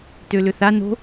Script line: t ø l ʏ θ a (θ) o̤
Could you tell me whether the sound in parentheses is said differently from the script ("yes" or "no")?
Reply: yes